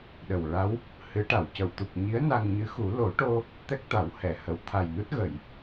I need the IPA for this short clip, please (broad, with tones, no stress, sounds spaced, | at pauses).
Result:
ɗ ə˨˩ w ɹ a˧˥ w | h ɨ˧˥ ʈ a˨˩˨ w c ə˨˩˨ w t̪ u˨˩ k̚ ɲ i˧˥ ə̯ n a˧ ŋ ɲ ɨ˧˥ x u˨˩˦ l o˨˩˦ ʈ o˧ | t̪ ɛ˦˥ k̚ t̪ a˨˩˦ w h ɛ˨˩˨ h ə˨˩˨ w t̪ʰ a˨˩ j n u˦˥ t̚ ɣ ə˨˩˨ j